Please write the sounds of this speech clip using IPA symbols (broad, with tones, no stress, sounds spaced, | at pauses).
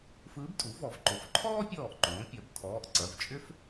f ɯː˧˥ b tʼ u˩˥ v ɔ˩˧ v ǃ o˩˧ f ǃʰ ɔː˥ pʲ ɔː˧˩ ʔ ǃ õː˩˧ pʲ ɐ˩˥ b tʰ ɔː˩˧˩ ʔ ǀ ɐ˩˧˩ v t͡ʃʼ ʏ˥ f